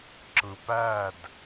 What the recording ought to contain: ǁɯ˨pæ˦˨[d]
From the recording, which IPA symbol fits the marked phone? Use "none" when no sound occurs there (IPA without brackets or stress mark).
d